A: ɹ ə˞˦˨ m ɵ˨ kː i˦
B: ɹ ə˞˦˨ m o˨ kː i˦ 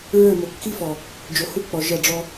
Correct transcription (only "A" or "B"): B